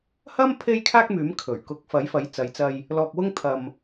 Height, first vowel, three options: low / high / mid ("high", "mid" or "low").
low